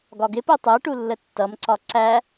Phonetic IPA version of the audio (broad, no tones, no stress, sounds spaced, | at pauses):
ɡ ɒ ɡ ɪ p ɜ tˤ ɜ ʈ u lː ə tː ʌ m ǀ ɒ ǀ æ